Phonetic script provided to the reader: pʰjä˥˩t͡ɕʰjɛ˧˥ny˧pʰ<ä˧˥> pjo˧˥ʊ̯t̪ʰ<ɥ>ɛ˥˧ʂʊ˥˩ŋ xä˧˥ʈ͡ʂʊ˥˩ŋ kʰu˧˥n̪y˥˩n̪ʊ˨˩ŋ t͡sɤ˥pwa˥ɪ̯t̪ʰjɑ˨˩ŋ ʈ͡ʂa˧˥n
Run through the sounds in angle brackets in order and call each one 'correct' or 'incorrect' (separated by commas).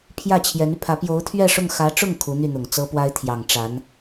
correct, correct